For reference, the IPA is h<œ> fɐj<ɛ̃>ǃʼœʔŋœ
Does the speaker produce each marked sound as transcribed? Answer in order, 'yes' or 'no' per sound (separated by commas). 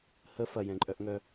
no, yes